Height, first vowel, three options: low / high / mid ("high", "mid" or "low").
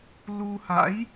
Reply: high